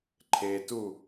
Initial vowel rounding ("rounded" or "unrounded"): unrounded